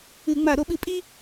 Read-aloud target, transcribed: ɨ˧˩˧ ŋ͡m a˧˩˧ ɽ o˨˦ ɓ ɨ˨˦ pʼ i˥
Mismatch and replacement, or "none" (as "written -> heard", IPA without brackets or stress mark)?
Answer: ɽ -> ɾ